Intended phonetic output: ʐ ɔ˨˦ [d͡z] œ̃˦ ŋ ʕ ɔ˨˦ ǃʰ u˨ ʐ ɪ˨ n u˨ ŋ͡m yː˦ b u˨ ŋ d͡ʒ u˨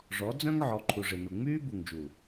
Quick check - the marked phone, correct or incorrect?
correct